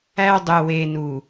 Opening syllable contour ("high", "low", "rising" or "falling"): high